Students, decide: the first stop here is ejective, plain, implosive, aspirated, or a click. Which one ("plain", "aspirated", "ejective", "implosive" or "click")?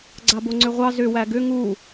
click